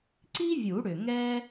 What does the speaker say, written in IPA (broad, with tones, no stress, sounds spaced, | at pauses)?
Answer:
ǀ i˥ vʲ u˨˩˦ ɽ ʏ˩ ŋ ɛ˥